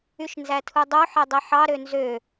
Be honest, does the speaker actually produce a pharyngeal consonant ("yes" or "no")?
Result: yes